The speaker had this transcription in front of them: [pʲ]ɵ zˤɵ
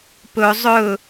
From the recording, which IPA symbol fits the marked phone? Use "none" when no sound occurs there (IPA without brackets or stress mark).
p